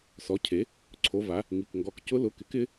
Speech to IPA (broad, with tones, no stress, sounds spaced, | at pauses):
s ɔ˩˥ cʰ e˩˥ | ǀʰ o˩˧ v a˩˧ | ŋ i˩˧˩ k ŋ ɡ ɔ˩˧ k c ʊ˧˥ l ʊ˩˧˩ k ɪ˩˥ k ɪ˧˥